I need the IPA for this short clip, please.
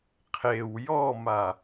qʰ e w j ɔ m a

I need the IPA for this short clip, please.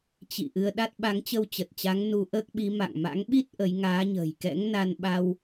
t͡ɕ ḭ˧˨ ʔ ɨ˧ ə̯ ɗ a˦˥ t̚ ɓ a˨˦ ŋ t͡ɕ ə˧ w t͡ɕ ə˨˩ t̚ t͡ɕ a˨˦ ŋ n u˧ ʔ əː˦˥ k̚ ɓ i˨˦ m a̰˧˨ ŋ m a̰˧˥ ŋ ɓ i˦˥ t̚ ʔ ə˨˦ j ŋ aː˨˦ ɲ ə̤ː˨˩ j k ɛ̰˧˥ ŋ n a˧ n ɓ a˧ w

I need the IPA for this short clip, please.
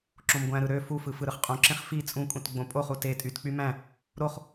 ǁ õ m ɡʷ æ̃ ɾ ɯ ɾ ø f u f ɯ f ɯ ɾ ɯ χ qʼ õ ǁ ẽ χ f i t͡sʼ ũ kʼ ũ t ɡ͡b õ pʼ o χ u t e tʼ y t k͡p y m æ̃ | ɾ o χ

